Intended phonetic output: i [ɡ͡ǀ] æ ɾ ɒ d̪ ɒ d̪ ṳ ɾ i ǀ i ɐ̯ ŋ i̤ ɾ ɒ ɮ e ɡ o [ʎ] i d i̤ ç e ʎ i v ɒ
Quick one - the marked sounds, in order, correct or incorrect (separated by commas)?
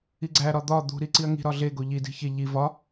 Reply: correct, correct